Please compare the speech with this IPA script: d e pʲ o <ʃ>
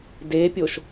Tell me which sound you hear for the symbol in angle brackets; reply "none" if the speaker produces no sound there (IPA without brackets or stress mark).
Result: ʃ